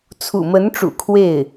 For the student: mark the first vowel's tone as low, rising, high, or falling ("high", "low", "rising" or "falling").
low